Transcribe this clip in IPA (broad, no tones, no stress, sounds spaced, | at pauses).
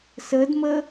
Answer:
s ə d m ə